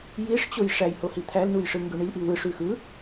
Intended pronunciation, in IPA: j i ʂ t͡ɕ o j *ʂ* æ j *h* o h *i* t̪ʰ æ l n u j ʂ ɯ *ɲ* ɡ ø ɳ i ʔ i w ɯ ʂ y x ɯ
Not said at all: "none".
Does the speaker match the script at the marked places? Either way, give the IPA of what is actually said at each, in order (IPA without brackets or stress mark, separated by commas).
ʂ, h, i, ŋ